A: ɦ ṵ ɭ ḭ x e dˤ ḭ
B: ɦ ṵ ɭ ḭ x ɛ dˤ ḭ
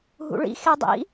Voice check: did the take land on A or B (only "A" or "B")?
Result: A